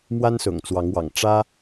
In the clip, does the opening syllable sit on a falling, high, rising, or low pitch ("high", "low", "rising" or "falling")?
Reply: high